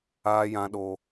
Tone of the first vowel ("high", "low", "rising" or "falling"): high